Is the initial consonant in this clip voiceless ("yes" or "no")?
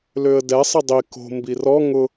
no